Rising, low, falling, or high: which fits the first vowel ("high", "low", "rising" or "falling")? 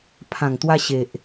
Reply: low